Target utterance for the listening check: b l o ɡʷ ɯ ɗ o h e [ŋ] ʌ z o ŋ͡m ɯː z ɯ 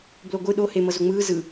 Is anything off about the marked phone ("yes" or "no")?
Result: yes